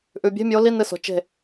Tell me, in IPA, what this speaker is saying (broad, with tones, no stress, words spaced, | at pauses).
ʔʉ˩bʲe̤˧˥˧mʲo˨˦ li˧˥˧nɨ˧˩so̤˩ t͡ʃe̤˧˩